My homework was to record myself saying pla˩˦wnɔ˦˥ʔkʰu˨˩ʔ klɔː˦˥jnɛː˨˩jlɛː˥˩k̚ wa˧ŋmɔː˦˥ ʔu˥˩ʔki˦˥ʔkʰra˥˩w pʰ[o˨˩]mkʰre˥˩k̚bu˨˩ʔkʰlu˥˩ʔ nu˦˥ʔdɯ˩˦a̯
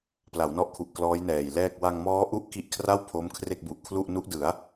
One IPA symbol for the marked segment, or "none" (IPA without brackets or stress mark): o˦˥